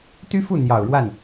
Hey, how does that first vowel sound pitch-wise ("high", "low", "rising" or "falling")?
high